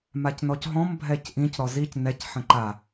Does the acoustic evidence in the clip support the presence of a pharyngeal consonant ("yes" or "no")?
yes